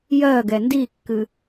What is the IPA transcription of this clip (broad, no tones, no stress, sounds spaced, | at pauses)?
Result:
j ɜ ɡ ɛ n d i kː ɨ